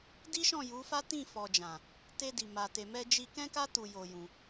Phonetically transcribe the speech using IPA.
d i˦ ʃ ɔ̃˦˨ j u˨˦ f a˦ t ĩ˦˨ f ɔ˨ d͡ʒ ã˨ | t e˧ d i˨ m a˨ t e˨ m ɛ˧ d͡ʒ i˧ k ɛ̃˦ k a˦ t u˧ j o˧ j ũ˧

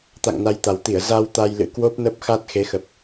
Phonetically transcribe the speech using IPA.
t̪ a̰˧˨ ŋ n a˧ j t̪ a˨˩ w t̪ i˧˩ ə̯ z a˧ w t̪ a˧ j l ɨ̰˧˥ k w o˦˥ p̚ n ə˦˥ p̚ x a˦˥ t̚ x e˨˦ x ə˨˩ p̚

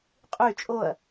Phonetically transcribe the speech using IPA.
qʼ y t͡ʃʼ o ɐ̯

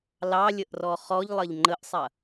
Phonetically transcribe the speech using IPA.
l ɑ lʲ ə ʔ r ɔ χ ɔ ʎ lˠ ɐ ʎ ŋ͡ǃ ə ʔ sˤ ɐ

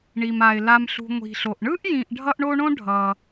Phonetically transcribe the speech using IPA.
ɳ i˩ m a˩ ɪ̯ l a˨ m ɬ ṳ˨ ŋʷ i̤˩ ɬ o˩ ʔ ɳ ɯ˥ ʔ j ĩ˨ ʔ ɖʱ ʌ˦ ʔ ɳ o˦ ɳ õ˥ ɖʱ ʌ˨

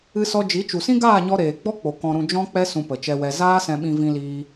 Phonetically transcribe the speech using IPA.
ɨ˧ s ɔ˧ d͡ʒ i˨˦ t͡ʃ u˨ s ĩ˦ ɡ aː˦˨ ɲ ɔ˧ ɾ eː˨ ɡ͡b ɔ˦ k͡p o˨ k ɔ̃˨ ɾ ũ˨ d͡ʒ ɔ̃˧ k͡p ɛ˧ s ũ˧ p ə˨ t͡ʃ ɛ˧ w ɛ˧ z aː˧ s ɛ̃˨ ɓ ĩ˨ v ĩ˧ l iː˧

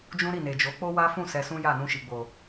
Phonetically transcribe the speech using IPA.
d͡ʒ ũ˦ ɾ i˦˨ n e˨ d͡ʒ o˨˦ k͡p o˦ w a˦ f ũ˦˨ s ɛ˧ s ũ˦ j a˦˨ n ũ˧ ʃ i˨ ɡ͡b o˨

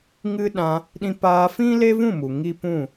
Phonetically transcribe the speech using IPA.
ŋ ɨ˦ ɗ ã˧ | ɗ ĩ˧ p aː˧ f ĩ˦ l e˦ v ũ˦˨ m u˨ ŋ i˦ p ũ˦˨

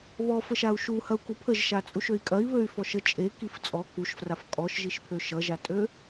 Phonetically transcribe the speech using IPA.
β ɔ f ə ʃ a u̯ ʃ u h ɐ u̯ k u pʰ ə ʒ ʃ a t͡sʼ u ʃ ø i̯ kʼ ɐ i̯ β ø y̯ f ɔ ʃ ə t͡ʃʼ e k i f t͡sʼ ɔ k u ʃ f r a f kʼ ɔ ʃ ʒ i ʃ pʰ ø ʃ ʌ ʒ a tʼ ø

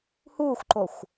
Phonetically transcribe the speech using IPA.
h uː xʷ ǃ o xʷ

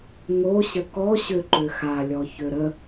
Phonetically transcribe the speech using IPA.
ŋ o ɕ ə k ɔ ɕ ø ǃ ø x a lʲ ɔ ç ø ɾ ə

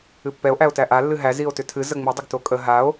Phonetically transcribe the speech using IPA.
ɨ pː ɛ o̯ ʔ æ o̯ t æ ʔ a lː ɨ ɦ æ z i o̯ t ʏ tʰ ɨ z ə ŋ͡m i dˤ ə ɡ t o kʼ ə ɦ a o̯

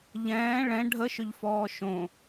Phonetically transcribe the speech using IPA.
ʎ ɛ̃ː ɭ ɛ̃ ɖʱ ə ʃ ʏ ʎ f ɔː ʃ õ

